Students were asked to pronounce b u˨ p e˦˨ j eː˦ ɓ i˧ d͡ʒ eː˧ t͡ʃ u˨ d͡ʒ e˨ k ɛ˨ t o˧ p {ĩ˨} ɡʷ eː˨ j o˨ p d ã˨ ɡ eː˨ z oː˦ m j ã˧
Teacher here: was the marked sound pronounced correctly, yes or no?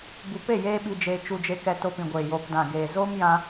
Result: yes